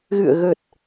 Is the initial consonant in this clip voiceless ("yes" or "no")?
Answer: no